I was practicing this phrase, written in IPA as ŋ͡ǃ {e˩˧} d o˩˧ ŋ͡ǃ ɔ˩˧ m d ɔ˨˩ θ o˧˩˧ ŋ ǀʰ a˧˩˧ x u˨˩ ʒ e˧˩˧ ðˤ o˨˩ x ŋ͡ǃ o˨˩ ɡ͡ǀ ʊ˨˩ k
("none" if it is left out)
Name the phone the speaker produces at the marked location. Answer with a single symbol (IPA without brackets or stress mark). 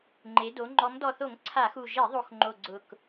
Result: e˩˧